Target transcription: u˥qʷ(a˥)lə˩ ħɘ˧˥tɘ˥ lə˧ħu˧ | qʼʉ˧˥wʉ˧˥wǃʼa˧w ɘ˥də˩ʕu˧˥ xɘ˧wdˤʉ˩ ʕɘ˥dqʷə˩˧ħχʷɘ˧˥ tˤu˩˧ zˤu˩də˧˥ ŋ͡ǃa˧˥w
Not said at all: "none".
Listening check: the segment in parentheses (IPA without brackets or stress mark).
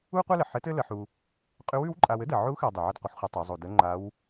a˥